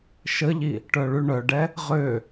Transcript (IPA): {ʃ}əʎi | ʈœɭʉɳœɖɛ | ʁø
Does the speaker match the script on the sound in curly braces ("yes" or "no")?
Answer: yes